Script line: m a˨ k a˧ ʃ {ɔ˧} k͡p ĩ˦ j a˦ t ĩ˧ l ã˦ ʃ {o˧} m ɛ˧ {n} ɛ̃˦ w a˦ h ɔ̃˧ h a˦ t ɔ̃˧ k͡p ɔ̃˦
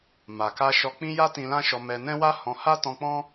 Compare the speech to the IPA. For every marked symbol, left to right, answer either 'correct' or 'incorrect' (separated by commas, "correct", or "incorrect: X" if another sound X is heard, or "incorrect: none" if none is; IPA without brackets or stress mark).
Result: correct, incorrect: ɔ˧, correct